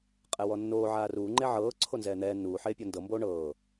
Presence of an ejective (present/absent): present